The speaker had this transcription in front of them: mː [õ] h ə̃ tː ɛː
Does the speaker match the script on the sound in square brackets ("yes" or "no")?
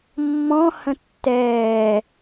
no